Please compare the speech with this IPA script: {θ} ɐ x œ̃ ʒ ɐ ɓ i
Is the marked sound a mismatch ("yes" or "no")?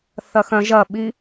no